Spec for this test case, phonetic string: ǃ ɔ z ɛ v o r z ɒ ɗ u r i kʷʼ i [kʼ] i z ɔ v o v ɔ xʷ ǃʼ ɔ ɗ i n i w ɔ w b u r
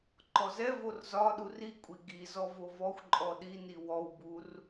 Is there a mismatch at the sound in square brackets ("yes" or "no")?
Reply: yes